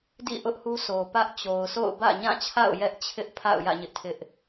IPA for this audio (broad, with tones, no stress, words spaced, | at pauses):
dḭ˦˨ʔʊ˦ʔ hu˦sʰo˨pä˦ʔ t͡ɕo˨ʊ̯sʰo̰˦˨ʊ̯ bä̰˦˨ɲã˦˨t͡ɕʰa̰˦˨ʊ̯ jɛ˦ʔt͡ɕʰɪ˦ʔpʰa̰˦˨ʊ̯jä̰˦˨ ɲɪ˦ʔtʰɪ˦ʔ